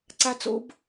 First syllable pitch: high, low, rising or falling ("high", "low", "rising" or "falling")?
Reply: high